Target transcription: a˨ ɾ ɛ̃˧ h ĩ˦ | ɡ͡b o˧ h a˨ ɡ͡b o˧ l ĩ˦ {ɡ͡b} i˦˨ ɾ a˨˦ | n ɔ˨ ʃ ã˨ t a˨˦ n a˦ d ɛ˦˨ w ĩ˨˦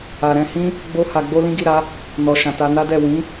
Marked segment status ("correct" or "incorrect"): incorrect